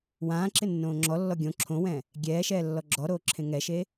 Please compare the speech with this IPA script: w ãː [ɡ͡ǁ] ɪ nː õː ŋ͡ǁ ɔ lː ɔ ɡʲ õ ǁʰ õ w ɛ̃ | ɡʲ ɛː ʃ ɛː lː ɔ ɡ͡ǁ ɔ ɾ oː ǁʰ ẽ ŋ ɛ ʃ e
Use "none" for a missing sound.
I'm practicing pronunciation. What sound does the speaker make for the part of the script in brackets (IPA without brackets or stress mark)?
ǁ